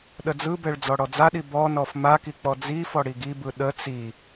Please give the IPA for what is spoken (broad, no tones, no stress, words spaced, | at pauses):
ɗəd͡zɯbɛɭ d͡zɔɽɔd͡zaɗi bɔnɔf maki k͡pɔd͡zifɔ ɽiɡibɯ ɗə t͡si